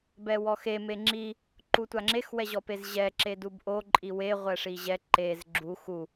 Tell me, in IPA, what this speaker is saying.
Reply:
bɛwɔxe meŋ͡ǁi | ǃutʷaŋ͡ǁex wɛʑɔpezʑɛ ǁedubʔo ǃʼiwe ʁʷɛʂiʑɛ ǃez ɡ͡ǁu xu

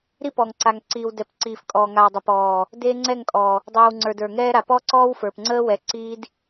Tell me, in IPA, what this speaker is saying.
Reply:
ɾi˦pɔː˨ŋǀa˨ŋǀiː˨w dɛ˨p ǀiː˨fkʼɔː˨ŋa˨wdˤɪ˨ pɔː˨ | deː˦ŋ͡ǀɛ˦˨ŋkʼɔː˨ | dˤiː˨wŋ͡ǀə˞˨d ə˞˨ŋɛː˦ɾa˨ pɔ˦ǀɔː˦wfə˞˨p ŋ͡ǀəː˦ wɛ˨˦ǀiː˦d

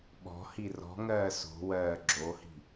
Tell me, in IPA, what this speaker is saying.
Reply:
ɓɔ̤ hirɔ̤ŋɜː so̤wɜː ɡ͡ǁohi̤

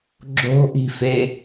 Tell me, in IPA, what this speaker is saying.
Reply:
ɡ͡ǁo̤ʔi̤fe

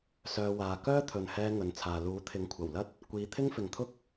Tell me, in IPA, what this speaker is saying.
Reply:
sœː˧waː˨ kœː˥t̪ʰɵ˨nhɛː˧ ŋɵ˨nt͡sʰaː˨ luː˨˥t̪ʰɪ˨˥ŋkʷʰɐ˨˩wlɐ˥t̚ | kʷiː˨˧ t̪ʰɪ˥ŋfɪ˨ŋt̪ʰʊ˥k̚

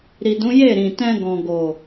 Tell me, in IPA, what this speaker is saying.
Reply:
ɾi˨dũ˨˦ je˦˨ɾĩ˨ tɛ̃˧ɡɔ̃˨ɡo˨

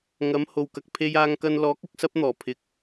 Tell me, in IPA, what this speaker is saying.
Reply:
ŋɐ˨˥mho˨wkɐ˨k̚ pʰe˧jaː˧ŋkɐ˧nlɔː˨˥k̚ ʊ˨˥k̚sɐ˥p̚n̪ɔː˨˩ pʰɪ˧k̚

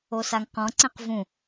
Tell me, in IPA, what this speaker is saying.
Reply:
osaŋqɔ̃ ǀẽqvũ

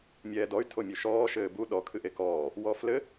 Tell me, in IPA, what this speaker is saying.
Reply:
mʲɛːdɔy̯ tʰomʲuʃɔː ʃɘːbu ɗɔkʰɨʔ ekɔː | wɔflɘ

